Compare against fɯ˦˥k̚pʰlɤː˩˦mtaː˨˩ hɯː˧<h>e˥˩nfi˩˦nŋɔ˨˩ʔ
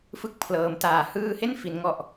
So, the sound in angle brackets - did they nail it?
yes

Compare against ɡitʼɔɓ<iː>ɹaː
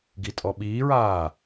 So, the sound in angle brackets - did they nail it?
yes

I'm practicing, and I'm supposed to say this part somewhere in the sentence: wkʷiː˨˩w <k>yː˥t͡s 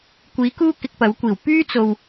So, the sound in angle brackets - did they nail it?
no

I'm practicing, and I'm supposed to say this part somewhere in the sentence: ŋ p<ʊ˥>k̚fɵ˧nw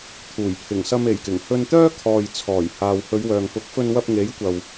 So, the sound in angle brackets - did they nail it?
no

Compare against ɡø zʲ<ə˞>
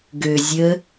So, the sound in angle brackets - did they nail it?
no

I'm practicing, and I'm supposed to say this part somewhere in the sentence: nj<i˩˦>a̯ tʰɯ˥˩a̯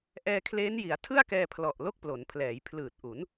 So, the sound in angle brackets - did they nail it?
yes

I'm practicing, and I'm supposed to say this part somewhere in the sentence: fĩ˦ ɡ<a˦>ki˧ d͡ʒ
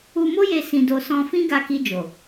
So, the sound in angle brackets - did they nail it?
no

